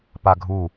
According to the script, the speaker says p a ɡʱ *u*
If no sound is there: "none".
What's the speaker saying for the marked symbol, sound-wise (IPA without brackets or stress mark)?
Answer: u